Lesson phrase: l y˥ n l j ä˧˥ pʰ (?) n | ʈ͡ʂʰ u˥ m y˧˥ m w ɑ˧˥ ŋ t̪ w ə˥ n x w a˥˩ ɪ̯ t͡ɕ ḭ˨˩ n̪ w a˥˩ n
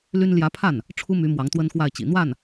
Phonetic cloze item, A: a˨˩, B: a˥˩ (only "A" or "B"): B